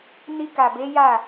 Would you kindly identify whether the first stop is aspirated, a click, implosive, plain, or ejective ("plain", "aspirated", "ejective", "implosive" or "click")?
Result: plain